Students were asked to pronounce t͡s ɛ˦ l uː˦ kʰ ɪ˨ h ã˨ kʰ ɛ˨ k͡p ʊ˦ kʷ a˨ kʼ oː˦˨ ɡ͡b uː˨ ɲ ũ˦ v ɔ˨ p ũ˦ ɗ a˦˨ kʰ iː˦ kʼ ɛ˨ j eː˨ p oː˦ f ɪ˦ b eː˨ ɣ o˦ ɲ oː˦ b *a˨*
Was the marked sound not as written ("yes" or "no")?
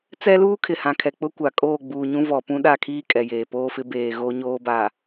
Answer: no